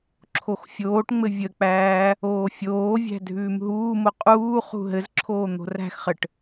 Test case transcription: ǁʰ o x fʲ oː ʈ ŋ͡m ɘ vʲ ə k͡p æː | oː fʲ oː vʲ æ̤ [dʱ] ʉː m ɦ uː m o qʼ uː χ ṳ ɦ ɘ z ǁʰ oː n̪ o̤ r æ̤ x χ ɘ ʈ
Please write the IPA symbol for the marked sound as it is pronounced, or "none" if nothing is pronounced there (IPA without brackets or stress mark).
dʱ